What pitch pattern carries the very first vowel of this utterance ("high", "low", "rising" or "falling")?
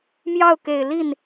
falling